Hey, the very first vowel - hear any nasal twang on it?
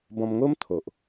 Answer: yes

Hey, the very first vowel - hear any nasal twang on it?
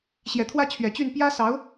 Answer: no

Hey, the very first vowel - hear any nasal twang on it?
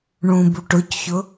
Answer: yes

